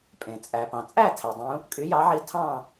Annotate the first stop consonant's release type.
ejective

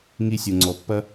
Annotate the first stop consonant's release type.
click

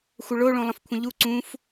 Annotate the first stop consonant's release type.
aspirated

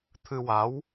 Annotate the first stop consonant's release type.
aspirated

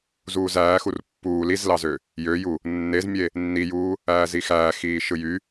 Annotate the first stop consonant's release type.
plain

